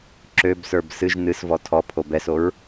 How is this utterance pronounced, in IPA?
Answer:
ǁøbsə˞b sɨʒ nɨsvɔ tʰɔ pʰobɛsoɹ

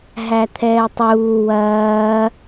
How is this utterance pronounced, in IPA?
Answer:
ɦæt̪ʰɛːtˤuː wɐː

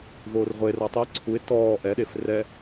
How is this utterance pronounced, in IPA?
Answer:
voːrʁʷera tˤi ǀʰuɪ̯ tɔː ʔɛɗef rɛ

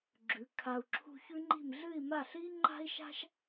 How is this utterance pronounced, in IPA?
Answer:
ɡ͡ǁʉ˩˧ kʰa˧u̯ǁʰṳ˥ çʉ˥ŋ͡ǃi̤˥˧m ɮɨ˥˧i̯ma˥˧ ɬi˥ ŋ͡ǃa̤˥i̯ʃa̤˥ʃ

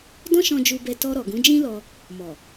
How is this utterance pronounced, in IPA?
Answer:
dɔ̃˦ʃɔ̃˧d͡ʒu˧ bɛ˧tɔ˧ɾɔ˨ ɡũ˨˦d͡ʒĩ˦lɔ˧ | mɔ˨

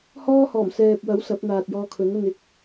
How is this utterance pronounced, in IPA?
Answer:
hɔː˥hɔː˨˩m sɛː˨p̚wɐ˨˥w sɐ˨˥p̚n̪aː˨t̚jɔː˧kʰɵ˨˥n ɐ˧n ɪ˨k̚

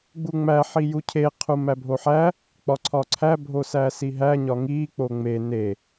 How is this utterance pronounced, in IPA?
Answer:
ɡ͡buŋ͡mæ ħijucʰe qʰumæbʱoħæ | k͡pɒǀʰɒǀʰæ bʱosæsiɦæ ɲɒŋi k͡poŋ͡me ne

